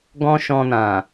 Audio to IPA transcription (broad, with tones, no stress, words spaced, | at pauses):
ɡɔ̃˦ʃɔ̃˧nã˨